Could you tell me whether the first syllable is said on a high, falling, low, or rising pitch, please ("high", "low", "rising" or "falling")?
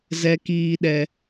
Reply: low